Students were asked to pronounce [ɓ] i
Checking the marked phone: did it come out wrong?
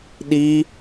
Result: yes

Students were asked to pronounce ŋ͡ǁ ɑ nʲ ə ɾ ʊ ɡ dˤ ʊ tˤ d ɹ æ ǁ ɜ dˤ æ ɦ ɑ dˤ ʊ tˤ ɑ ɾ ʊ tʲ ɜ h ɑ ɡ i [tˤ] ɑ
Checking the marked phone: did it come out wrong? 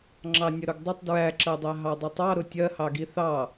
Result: yes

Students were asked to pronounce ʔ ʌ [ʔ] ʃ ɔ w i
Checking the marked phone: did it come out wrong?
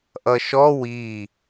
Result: yes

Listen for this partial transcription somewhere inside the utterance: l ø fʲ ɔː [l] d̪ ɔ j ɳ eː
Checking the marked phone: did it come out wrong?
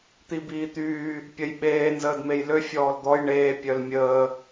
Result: no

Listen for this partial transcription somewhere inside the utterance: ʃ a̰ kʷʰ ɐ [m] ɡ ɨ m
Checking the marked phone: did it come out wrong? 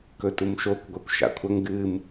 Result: yes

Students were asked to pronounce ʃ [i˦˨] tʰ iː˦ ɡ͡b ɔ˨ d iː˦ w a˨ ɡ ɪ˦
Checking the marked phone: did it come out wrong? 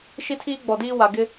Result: yes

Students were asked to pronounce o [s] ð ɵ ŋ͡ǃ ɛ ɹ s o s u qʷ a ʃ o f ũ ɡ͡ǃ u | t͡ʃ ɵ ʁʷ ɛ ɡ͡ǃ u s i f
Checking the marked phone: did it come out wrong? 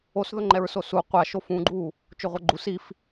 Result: no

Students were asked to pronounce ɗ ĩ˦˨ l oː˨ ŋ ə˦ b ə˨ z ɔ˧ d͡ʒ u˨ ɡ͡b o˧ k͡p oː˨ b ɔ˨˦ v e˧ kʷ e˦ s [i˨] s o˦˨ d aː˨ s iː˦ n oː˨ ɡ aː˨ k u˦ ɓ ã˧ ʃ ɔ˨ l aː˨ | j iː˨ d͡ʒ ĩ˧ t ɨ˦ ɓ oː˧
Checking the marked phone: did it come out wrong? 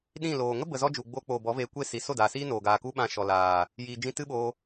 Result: no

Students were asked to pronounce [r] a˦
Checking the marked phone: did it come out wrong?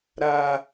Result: yes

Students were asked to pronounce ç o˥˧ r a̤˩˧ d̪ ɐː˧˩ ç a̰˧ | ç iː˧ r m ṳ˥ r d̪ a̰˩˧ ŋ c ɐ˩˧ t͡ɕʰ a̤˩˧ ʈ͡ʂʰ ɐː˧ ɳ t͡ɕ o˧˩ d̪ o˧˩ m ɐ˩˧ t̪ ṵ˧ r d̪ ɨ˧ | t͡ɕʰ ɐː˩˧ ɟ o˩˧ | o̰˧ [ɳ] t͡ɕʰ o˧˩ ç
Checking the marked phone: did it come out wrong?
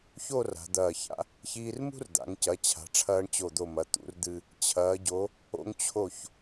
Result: yes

